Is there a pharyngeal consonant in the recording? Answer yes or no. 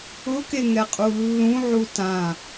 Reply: yes